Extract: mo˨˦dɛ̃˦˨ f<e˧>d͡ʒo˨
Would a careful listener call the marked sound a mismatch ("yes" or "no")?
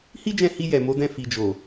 yes